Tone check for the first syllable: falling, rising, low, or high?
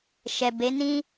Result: low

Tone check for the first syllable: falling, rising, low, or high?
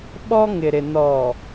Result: high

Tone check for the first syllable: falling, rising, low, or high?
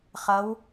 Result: rising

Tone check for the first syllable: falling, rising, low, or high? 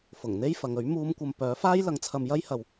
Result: low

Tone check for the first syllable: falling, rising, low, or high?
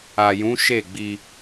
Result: low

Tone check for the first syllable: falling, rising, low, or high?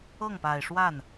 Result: falling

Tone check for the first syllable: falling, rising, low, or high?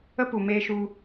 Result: high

